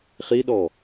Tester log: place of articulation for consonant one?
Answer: uvular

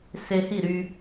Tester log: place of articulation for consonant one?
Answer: alveolar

